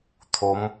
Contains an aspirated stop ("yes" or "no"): yes